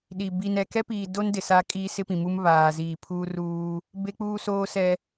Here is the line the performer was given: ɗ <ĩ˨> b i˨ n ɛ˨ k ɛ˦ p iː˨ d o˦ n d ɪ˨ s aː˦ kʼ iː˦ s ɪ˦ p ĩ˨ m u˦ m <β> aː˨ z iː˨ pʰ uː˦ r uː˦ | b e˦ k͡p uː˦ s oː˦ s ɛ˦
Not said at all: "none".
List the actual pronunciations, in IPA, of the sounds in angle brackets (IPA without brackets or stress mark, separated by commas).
i˨, β